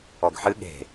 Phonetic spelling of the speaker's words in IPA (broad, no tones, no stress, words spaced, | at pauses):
ɔɡħɨ ɠe̤